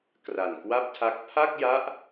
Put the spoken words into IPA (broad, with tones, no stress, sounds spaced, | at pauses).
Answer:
k r a˨˩ n k w a˥˩ p̚ tʰ a˦˥ k̚ pʰ a˥˩ k̚ j a˦˥ ʔ